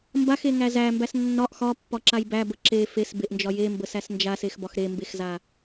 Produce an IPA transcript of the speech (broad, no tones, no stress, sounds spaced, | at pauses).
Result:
m b a x e ŋ æ z æ m b æ s nː ɒ ʔ x ɒ pː ɒ ǁ a j b æ b ə ǁ e f e s b e ʔ n d͡ʒ ɒ j e m b ə s æ s n d͡ʒ a s e x b ɒ x ɾ e m b e x z a